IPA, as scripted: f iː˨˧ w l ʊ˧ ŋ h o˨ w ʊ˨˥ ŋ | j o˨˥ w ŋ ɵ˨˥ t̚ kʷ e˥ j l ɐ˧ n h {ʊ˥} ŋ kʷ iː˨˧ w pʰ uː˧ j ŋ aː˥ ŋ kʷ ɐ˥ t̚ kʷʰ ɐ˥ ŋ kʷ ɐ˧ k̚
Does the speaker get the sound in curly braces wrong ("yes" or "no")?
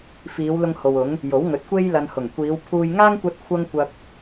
yes